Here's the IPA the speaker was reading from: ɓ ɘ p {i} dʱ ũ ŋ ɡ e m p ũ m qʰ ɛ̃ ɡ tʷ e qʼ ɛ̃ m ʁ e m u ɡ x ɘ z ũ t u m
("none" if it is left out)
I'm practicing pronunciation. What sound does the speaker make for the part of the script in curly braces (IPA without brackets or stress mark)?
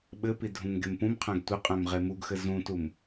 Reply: i